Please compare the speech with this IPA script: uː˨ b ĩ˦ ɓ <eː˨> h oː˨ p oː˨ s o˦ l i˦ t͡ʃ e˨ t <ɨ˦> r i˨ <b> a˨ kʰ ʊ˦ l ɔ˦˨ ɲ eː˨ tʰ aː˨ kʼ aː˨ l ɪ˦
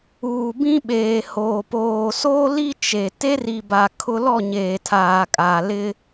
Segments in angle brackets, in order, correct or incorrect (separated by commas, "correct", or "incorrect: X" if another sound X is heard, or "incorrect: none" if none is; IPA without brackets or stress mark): correct, incorrect: e˦, correct